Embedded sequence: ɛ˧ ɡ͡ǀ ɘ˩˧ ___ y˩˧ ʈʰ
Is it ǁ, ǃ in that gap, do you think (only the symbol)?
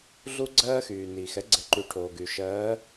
ǃ